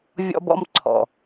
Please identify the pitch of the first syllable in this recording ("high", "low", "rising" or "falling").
high